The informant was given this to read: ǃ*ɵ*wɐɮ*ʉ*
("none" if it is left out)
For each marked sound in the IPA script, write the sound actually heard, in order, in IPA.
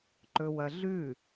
ɵ, ʉ

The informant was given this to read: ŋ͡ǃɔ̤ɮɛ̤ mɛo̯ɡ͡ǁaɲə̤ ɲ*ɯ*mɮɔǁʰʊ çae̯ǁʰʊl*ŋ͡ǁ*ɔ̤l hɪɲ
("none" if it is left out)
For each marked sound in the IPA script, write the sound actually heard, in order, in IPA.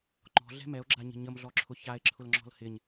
ə, ŋ͡ǁ

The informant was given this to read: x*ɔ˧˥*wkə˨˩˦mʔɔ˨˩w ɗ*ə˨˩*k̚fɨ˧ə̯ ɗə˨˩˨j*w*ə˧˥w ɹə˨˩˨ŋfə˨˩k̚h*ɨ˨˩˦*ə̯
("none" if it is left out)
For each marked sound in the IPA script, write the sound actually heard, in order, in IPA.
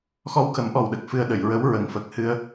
ɔ˧, ə˨˩, ɹ, ɨ˧

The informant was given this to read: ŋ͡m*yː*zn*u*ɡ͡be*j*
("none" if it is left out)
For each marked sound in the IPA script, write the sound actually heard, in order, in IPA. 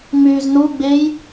yː, u, j

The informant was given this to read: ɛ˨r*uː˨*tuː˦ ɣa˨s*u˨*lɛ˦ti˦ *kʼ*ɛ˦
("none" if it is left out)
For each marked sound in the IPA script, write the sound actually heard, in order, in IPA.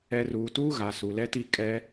uː˨, u˨, kʼ

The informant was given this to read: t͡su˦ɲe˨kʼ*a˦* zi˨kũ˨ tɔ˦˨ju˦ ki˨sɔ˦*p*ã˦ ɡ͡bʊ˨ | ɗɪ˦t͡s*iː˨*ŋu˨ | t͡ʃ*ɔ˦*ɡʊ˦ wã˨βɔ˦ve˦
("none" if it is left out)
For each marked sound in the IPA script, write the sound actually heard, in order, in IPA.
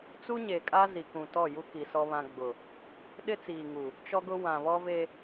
a˦, β, iː˨, ɔ˦

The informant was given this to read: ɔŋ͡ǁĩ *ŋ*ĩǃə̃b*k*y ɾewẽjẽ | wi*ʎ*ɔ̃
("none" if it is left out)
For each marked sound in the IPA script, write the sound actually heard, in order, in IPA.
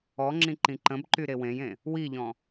ǃ, ǃ, ʎ

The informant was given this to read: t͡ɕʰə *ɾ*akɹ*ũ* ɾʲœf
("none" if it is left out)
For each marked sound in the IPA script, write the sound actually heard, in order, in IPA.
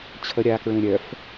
ɾʲ, ũ

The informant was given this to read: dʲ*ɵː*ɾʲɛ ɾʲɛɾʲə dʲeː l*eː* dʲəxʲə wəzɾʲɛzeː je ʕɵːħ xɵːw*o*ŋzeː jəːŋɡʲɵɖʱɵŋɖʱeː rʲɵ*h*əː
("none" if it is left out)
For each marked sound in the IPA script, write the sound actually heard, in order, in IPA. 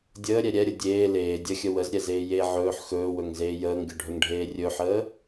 əː, eː, ɵ, ħ

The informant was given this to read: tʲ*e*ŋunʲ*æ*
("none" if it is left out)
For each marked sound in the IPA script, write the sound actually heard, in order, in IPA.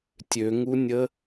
ø, ə

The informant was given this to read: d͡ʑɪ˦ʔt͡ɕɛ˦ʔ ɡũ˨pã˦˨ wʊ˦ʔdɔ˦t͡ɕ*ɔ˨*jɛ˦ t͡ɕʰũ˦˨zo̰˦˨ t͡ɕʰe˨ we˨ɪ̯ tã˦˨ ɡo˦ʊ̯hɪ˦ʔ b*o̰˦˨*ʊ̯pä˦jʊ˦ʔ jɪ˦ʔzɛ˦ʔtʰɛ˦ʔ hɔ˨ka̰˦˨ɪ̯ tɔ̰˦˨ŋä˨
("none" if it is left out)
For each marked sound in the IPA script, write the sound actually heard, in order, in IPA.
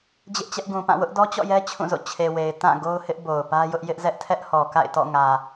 ɔ̰˦˨, o˨

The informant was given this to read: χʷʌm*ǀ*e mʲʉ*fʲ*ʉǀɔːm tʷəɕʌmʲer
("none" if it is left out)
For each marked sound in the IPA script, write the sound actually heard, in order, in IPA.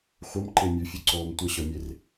ǃ, fʲ

